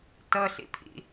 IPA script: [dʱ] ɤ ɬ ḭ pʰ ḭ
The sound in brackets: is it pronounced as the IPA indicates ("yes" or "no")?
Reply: no